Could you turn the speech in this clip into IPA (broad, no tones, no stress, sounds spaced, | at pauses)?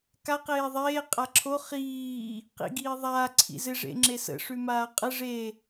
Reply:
k a q eː ðˤ eː qʼ a ǁʰ o χ iː | q ḭ ɡ iː ðˤ aː ǀʰ ḭ z ɪ ʐ ḛ ŋ͡ǁ e s ə̰ ʂ ʉ m aː qʼ ə ʐ e